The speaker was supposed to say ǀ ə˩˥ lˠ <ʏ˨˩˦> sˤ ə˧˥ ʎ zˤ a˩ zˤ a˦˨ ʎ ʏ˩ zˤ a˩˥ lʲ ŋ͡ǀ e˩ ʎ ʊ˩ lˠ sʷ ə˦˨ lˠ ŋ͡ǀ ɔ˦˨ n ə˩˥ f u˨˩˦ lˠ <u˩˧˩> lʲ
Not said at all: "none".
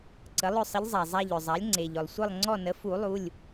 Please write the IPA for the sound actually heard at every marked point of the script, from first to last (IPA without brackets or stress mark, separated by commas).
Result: ʏ˦˨, u˩˧˩